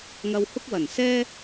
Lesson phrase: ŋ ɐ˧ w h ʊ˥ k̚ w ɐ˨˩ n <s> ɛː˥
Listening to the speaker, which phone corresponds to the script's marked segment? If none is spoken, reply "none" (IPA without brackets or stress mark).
s